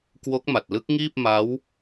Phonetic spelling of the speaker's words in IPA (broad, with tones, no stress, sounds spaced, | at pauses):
k w o˦˥ k̚ m a˨˩ t̚ l ɯ˦˥ k̚ ŋ iː˥˩ p̚ m a˦˥ w